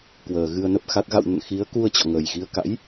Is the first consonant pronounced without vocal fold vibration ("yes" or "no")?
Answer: yes